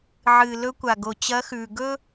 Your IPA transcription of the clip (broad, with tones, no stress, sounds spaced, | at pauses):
ʕ ɨ˩ l ɵ˧ kʷ a˩ ɡ o˩ t͡ɕ ɐ˧˥ x ʉː˩ ɡ ɵ˥